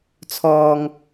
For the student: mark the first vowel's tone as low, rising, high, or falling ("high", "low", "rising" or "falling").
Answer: low